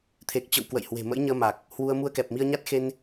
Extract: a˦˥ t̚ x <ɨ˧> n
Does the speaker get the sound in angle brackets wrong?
yes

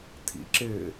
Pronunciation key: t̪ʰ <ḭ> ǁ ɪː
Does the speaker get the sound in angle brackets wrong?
no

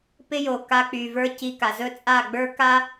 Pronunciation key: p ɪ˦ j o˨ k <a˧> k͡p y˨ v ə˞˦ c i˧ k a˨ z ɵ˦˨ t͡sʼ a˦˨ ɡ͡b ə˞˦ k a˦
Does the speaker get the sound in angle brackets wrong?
no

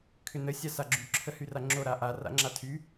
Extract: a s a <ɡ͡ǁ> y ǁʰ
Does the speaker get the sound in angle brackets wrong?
no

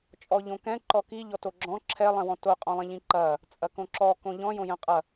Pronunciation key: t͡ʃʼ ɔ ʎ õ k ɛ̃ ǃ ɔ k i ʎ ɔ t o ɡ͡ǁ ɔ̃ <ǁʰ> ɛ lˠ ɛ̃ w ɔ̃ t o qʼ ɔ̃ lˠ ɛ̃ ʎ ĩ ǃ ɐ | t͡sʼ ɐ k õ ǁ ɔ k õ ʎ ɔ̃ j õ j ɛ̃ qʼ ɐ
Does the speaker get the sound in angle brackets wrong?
no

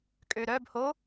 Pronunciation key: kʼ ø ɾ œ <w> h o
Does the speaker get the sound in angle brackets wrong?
yes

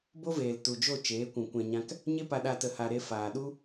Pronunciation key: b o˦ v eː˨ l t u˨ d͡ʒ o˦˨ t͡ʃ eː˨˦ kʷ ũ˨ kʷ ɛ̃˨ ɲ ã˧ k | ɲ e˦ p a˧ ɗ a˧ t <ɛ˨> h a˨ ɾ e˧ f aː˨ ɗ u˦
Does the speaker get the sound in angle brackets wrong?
yes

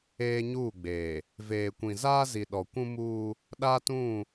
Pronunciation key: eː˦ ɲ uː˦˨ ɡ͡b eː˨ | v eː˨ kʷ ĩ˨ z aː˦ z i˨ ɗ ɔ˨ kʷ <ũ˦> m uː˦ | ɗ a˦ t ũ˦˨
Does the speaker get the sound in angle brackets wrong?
no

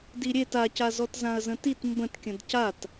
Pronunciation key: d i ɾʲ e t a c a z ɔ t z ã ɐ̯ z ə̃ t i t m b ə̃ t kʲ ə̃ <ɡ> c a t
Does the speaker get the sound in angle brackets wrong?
yes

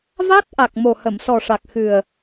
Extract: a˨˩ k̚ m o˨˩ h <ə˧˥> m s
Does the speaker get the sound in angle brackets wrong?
yes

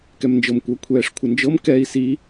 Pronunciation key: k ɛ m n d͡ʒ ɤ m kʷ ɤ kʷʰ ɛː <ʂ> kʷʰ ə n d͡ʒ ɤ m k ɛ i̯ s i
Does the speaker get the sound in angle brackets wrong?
no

